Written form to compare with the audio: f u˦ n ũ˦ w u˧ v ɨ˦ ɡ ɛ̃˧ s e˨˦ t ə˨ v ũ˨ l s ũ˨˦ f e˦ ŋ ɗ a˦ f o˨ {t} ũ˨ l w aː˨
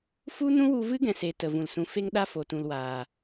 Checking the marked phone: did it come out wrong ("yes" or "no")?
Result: no